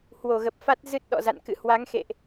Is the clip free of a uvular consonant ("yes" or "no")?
yes